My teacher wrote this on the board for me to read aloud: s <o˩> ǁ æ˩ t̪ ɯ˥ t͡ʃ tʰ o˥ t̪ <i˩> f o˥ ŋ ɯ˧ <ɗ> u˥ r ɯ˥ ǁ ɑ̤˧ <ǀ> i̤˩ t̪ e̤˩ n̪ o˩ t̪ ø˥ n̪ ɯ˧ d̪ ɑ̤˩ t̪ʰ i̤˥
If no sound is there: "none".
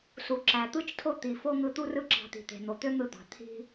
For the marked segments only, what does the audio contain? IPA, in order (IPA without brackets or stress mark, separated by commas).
u˩, i˩, t̪, t̪